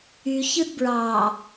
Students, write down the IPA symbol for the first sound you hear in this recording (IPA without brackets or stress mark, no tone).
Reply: y